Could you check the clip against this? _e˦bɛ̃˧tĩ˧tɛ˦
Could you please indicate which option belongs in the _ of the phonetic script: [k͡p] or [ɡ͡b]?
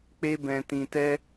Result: k͡p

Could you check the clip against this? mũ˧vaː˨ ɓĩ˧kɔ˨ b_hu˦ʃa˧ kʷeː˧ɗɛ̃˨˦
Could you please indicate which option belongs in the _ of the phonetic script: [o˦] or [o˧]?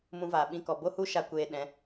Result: o˦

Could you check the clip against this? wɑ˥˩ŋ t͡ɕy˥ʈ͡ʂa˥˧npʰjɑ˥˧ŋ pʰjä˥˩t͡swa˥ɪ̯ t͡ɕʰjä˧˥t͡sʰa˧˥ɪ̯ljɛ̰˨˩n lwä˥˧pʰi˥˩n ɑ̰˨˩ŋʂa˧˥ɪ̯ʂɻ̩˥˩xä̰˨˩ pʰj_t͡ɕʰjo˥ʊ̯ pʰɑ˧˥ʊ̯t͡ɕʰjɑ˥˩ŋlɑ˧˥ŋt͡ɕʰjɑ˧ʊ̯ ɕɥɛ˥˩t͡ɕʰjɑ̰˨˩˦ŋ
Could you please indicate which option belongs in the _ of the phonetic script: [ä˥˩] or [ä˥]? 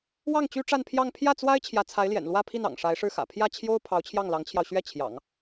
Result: ä˥˩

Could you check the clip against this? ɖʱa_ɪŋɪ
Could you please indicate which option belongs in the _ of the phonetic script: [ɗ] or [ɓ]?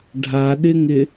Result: ɗ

